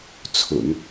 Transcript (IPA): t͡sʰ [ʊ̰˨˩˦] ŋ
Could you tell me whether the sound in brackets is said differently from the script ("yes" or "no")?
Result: no